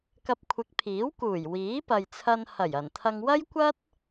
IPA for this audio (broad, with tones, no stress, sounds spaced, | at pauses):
k ɐ˧ p̚ kʷʰ ɪ˨˥ k̚ pʰ iː˨˥ w k uː˨˩ j w iː˨˥ p ɐ˨ j t͡sʰ ɐ˧ n h ɐ˨˩ j ɐ˨˩ n t̪ʰ ɐ˧ ŋ w ɐ˥ j kʷ ɐ˥ t̚